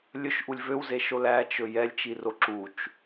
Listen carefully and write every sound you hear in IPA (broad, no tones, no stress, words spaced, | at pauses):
lʲɵʃʔulʲ vøwzeʃo læt͡ʃɵ jɛlʲt͡ʃiro ǁut͡ʃ